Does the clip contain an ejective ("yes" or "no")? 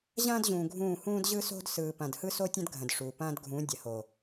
no